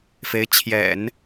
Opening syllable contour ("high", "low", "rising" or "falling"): rising